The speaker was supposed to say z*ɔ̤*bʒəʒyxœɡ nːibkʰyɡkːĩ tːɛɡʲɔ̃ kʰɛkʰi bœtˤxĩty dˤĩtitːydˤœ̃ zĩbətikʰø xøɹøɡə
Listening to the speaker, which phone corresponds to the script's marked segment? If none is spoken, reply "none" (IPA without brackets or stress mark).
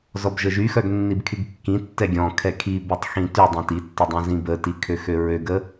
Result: ɔ